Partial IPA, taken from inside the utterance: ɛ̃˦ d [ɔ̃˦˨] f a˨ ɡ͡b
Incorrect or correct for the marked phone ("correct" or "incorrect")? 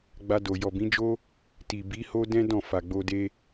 correct